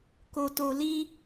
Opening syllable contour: low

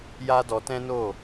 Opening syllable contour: high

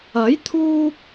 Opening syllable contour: rising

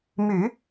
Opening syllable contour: low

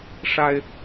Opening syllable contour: high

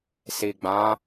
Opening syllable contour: low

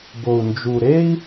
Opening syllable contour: low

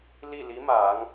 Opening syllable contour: falling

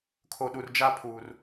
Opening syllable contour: high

